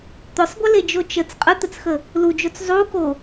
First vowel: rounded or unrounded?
rounded